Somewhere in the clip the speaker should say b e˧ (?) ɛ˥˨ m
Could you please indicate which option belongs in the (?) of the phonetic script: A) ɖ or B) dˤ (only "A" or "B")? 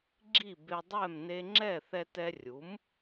B